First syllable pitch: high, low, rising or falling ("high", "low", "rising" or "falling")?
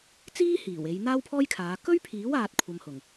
high